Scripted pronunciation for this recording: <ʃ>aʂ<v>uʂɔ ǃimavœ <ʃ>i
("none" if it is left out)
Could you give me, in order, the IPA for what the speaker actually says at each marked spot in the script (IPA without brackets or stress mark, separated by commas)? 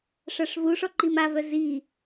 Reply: ʂ, v, z